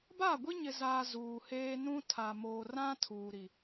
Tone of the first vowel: falling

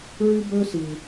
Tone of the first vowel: high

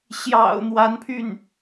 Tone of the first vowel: low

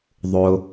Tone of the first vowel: low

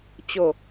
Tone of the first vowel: low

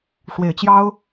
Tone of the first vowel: low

